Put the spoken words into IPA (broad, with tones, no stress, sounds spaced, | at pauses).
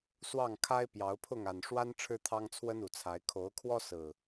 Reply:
s w ɑ˥˨ ŋ kʰ a˦ ɪ̯ p j ɑ˨˦ ʊ̯ pʰ ʊ˥˨ ŋ a˨˩ n ʂ w a˦ n ʈ͡ʂʰ ɻ̩˦ t̪ʰ ɑ˦ ŋ t͡sʰ w ə˦ n u˨˩ t͡sʰ a˨˦ ɪ̯ kʰ o˨˦ ʊ̯ kʰ w ɔ˦ s ɹ̩˨˩